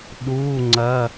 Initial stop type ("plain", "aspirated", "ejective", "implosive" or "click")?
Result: implosive